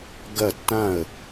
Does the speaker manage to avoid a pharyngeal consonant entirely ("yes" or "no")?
yes